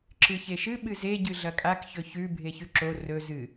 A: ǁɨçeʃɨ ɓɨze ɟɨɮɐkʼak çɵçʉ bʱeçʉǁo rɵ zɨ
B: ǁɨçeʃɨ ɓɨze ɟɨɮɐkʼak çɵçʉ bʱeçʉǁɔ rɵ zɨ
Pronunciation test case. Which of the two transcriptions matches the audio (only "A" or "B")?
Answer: A